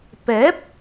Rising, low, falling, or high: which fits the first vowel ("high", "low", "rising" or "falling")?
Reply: rising